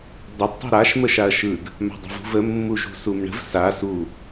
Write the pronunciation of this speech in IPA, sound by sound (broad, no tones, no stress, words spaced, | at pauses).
dˤəd tˤṳɾaʃ məʃaɐ̯ʃɯd | ma̤dˤə̤vṳvə mːuʒṳsumɳə̤v sa su